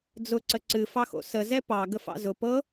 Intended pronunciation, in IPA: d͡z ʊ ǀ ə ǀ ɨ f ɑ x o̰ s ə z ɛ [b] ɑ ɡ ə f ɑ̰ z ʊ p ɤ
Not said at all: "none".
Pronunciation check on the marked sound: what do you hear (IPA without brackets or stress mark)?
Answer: p